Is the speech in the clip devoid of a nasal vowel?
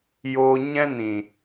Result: no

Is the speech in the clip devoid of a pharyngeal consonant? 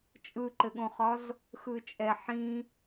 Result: no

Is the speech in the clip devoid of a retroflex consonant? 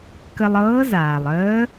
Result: yes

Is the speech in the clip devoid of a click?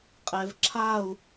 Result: no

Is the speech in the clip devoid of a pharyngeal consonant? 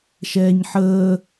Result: no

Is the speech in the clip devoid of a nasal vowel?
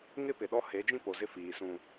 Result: no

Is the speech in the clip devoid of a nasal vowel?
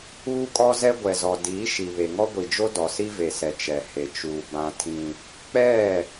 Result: no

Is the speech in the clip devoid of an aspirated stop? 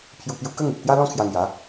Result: no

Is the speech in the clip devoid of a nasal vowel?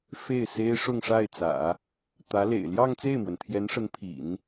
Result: yes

